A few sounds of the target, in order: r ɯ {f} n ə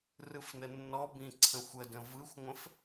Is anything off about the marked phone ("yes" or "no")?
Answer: no